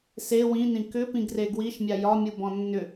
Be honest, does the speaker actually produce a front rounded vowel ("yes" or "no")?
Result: yes